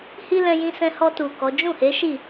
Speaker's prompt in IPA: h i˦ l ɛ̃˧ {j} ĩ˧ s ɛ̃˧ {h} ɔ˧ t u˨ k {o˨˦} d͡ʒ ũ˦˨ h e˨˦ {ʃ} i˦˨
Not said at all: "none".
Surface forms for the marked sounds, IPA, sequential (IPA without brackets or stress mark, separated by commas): j, h, ɔ˨˦, ʃ